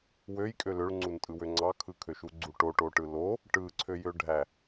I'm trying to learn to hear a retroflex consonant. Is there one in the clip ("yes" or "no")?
yes